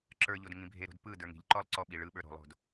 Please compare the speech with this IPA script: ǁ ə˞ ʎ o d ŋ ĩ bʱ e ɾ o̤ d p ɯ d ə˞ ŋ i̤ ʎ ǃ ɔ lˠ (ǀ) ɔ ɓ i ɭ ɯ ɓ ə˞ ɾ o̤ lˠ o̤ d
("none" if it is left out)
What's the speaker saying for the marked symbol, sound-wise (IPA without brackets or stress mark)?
ǀ